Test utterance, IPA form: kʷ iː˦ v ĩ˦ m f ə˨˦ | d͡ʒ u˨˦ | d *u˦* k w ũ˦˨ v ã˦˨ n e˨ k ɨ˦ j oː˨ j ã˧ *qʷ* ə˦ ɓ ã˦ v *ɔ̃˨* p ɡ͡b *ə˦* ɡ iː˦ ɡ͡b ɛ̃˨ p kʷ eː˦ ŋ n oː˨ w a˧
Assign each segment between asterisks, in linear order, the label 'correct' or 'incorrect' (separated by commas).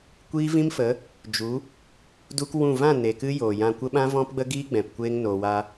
correct, incorrect, incorrect, correct